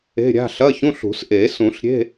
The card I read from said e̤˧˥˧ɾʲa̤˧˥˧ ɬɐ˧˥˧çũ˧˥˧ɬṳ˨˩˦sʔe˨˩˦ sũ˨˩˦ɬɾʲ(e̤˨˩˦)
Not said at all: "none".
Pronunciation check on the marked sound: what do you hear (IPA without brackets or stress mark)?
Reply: e̤˧˥˧